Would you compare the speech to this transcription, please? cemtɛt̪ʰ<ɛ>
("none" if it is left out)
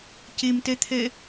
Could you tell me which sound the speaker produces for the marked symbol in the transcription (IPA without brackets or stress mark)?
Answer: ɛ